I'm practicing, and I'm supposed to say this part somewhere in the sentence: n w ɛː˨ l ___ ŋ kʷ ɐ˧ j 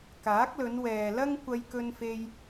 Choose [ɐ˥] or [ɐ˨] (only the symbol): ɐ˥